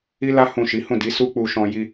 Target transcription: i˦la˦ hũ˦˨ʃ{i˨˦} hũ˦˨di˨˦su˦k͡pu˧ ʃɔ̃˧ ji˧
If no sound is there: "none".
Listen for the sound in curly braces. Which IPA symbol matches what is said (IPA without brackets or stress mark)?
i˨˦